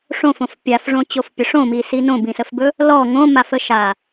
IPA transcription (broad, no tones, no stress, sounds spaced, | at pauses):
ʂ õ f õ f pʲ a f ʐ õ t͡ɕ o f pʲ ə ʂ õ m i s i n õ b ĩ s ə f b ɵ | l ɔ ŋ õ m a f ə ʃ a